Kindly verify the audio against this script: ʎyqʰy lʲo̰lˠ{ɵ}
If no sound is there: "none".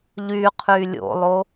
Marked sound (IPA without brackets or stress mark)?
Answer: o